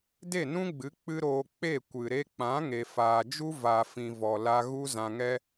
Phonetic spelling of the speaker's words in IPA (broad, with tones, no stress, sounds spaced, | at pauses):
d e˦˨ n ũ˦ ɡ͡b ɨ˨˦ k͡p ɨ˦ ɾ oː˧ k͡p e˦˨ kʷ ɨ˨ ɾ e˧ k͡p ã˨˦ ŋ e˨ f aː˨ d͡ʒ u˦ v a˨ f ĩ˨ v ɔ˨ l a˧ ɣ u˦ z ã˧ ŋ ɛ˦